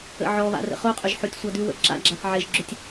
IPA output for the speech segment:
ə̰ ʕ ɔ β a̰ r ə̰ χ o qʼ ʏ ʒ ħ o tʲ sʷ a d ʉ w ə̰ ǁ a̰ ɡ͡ǁ a θ ʕ e ʒ ɡ͡ǁ ʏ tʲ

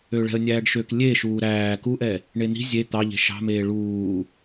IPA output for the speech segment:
ø ɭ ɛ̤ ə̯ nʲ æː ɖ ʃ ø k lʲ e ʃ uː ɾ æː k u ʔ ɛ | ɳ e n̪ i̤ zʲ e t̪ ɑ ʎ e̤ ʃ ɑ̤ m eː ɭ uː

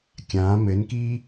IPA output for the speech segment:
kʲ ãː m ɘ n k i

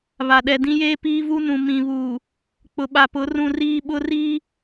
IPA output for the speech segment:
β a˨ ɗ ɛ˨ d ĩ˦ j eː˦ p iː˦ v u˦ n ũ˨ m ĩ˨ β uː˨ | k͡p ʊ˨ ɓ a˨ p ʊ˨˦ r ũ˦ r iː˦ ɓ ʊ˦ r iː˦

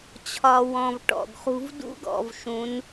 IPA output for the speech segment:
t͡ɕʰ ɒ˨ w ɔ̃˨ v ʈ ɔ̰˨ ɡ χ ṳ˦ v d ṵ˦ ɡ ɔ̰˨ v ʃ ũ˨˦ n

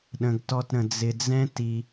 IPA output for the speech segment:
ɗ ə̃˩ ɡ t ɔ˨ t ɾ ə̃˩ d͡z ɪ˨ d͡z ɛ̃˥ t i˨

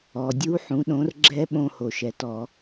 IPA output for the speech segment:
ɔ˩ dʲ u˦˥ ħ ũ˩˥ ɗ õ˩˥ r ɡ͡ǁ ɛ˦˥ ɓ õ˧ h o˩ ʃ ɛ˩ t ɔ˧˩˧

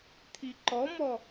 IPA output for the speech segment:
t̪ʰ i ǃ ɔ m ɔ

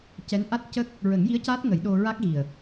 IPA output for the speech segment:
c ɛ˧˥ n ʔ a˦˥ t̚ c ə˦˥ k̚ | ɹ ə˨˩˦ ŋ j i˧˥ ə̯ c aː˦˥ t̚ ŋ ə˨˩˦ j ɗ o˧ ɹ a˦˥ k̚ ɣ i˨˩ ə̯

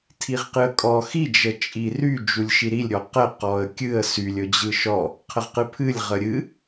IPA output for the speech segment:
tʰ i ʁ q ɨ ə̯ kʼ ɔ x i d͡ʒ ə t͡ʃʼ i r y d͡ʒ u lʲ ʃ i ɾ i lʲ ɾʲ ɔ q ə q ɔ ə̯ kʲ ɨ ə̯ s y lʲ ɵ d͡ʑ ɯ ʃ ɔ | qʰ ə ʁ q ɨ pʰ ɨ lʲ ʁ ə ɾʲ ɨ

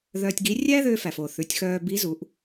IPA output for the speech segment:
ð œ˧ tʲ ɡ i˧˥ rʲ æ˥ ð ø˧ f æ˩ f o˩ θ ʉ˩˧ tʲ x œː˧ b i˧˥ z u˩˧ ʔ

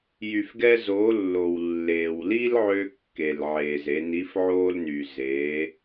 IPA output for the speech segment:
j y˩ f ɡ ɛ˧ z o˩˧ lː o˩ w lː eː˩ w l i˥ l ʕ ø˧ kː e˩ l ʕ eː˩ z e˩˧ n i˧˥ f ʕ oː˥ l n y˩ z e˩˧

